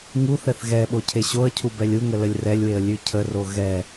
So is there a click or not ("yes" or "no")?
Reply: no